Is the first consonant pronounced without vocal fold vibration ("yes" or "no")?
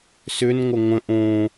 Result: yes